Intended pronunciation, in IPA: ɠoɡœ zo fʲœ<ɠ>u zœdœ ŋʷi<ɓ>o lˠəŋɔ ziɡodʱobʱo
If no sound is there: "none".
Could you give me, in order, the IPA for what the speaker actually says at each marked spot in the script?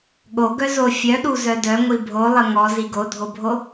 ɗ, bʱ

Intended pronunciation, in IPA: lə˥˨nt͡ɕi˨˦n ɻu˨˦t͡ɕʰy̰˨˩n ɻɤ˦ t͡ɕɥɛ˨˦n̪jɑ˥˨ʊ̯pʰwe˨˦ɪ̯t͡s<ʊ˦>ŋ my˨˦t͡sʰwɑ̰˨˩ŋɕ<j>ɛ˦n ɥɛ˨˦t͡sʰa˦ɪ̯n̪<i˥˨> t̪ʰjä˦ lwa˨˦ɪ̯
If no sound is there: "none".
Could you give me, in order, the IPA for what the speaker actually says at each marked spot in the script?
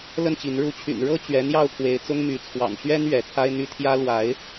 ʊ˦, ɥ, y˥˨

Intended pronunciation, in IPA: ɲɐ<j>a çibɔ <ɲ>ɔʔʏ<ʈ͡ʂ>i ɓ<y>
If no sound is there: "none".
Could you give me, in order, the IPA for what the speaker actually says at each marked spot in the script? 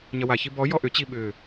w, j, t͡ɕ, ʏ

